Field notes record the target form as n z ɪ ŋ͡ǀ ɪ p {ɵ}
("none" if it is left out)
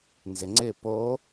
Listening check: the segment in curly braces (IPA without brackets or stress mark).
o